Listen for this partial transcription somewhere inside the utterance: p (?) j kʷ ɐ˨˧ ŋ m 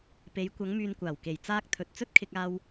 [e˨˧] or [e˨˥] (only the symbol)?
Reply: e˨˧